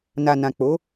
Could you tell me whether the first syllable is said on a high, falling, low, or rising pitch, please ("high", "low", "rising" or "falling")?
low